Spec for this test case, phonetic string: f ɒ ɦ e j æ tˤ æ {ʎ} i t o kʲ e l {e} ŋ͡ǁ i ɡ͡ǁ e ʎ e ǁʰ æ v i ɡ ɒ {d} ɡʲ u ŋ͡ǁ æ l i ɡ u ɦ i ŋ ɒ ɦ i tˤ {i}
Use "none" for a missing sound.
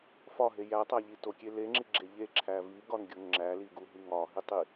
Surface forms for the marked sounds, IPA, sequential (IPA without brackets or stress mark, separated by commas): ʎ, e, n, i